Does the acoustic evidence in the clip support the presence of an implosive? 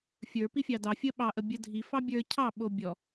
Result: yes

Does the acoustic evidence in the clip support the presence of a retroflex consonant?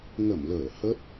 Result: no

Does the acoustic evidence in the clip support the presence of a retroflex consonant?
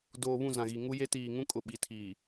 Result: no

